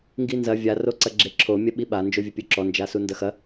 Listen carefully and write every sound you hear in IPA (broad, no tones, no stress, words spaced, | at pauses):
ŋɡinzɐ vʲa roǀɐɡ͡ǁeǁʰo mʲɐɓiɓa nd͡ʒovʲɘpʲuǁɔ nd͡ʒasundɐxɐ